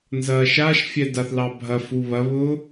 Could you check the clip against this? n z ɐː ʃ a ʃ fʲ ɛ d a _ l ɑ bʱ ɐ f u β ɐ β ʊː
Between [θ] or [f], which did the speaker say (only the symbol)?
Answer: θ